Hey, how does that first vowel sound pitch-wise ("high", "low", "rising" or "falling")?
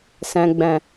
low